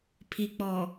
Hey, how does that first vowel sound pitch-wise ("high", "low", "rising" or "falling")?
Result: low